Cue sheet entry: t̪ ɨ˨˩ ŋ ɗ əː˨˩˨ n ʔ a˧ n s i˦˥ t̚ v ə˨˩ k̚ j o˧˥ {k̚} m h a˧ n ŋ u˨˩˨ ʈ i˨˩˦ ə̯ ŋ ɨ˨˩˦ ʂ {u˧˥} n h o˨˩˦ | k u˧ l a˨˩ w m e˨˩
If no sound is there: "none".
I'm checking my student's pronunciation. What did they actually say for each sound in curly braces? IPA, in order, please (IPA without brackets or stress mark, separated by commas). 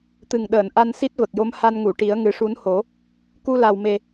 none, u˧˥